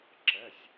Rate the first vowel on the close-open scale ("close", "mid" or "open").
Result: mid